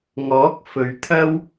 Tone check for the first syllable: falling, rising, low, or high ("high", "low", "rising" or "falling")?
rising